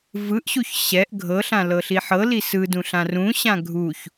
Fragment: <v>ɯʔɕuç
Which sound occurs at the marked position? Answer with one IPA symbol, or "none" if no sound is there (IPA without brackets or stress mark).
v